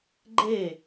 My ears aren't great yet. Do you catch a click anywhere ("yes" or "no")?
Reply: yes